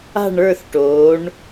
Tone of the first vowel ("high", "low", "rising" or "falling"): falling